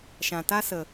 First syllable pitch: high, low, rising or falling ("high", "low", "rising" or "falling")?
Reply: low